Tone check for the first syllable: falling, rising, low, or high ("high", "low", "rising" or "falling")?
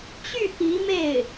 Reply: falling